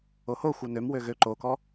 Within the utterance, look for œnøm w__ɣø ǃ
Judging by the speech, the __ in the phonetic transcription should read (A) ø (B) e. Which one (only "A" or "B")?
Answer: A